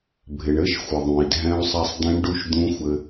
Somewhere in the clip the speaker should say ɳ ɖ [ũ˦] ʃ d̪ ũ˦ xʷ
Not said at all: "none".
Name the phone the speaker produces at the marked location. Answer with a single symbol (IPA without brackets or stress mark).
u˦